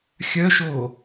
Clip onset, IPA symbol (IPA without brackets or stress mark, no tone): xʲ